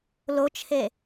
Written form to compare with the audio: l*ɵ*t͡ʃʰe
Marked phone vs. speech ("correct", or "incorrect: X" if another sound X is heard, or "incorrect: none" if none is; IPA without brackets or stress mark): incorrect: o